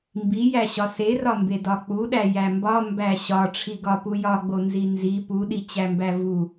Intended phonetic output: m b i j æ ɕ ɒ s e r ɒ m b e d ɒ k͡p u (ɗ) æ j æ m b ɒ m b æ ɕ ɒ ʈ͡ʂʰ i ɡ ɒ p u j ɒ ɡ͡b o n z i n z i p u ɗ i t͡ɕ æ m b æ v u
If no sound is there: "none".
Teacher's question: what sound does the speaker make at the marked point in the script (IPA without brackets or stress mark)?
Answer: ɗ